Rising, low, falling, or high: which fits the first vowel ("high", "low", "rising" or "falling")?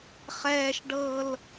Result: high